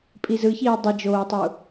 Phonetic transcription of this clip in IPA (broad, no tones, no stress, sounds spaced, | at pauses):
pʼ i z ɯ ç iː dˤ i d͡ʒ oː tˤ u